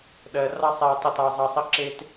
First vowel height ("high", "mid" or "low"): mid